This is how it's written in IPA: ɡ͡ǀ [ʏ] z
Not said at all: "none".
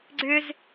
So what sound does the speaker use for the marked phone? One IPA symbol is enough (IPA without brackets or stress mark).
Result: ʏ